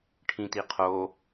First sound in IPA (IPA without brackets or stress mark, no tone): ʈʰ